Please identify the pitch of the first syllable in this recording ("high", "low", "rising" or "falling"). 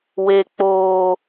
low